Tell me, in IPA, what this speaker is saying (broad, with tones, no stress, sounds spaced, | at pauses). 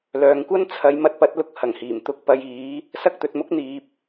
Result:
l œː˨ ŋ kʷ ɐ˥ n t͡sʰ ɐ˨˧ j m ɐ˧ t̚ p ɐ˨˥ t̚ l ʊ˧ k̚ h ɐ˨˩ ŋ h iː˨˩ m t̪ ʊ˧ k̚ p ɐ˧ j iː˨˥ | s ɐ˥ k̚ t̪ ɵ˨ t̚ m ʊ˥ k̚ n̪ iː˨ p̚